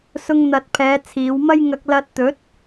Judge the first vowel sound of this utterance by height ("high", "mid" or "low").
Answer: high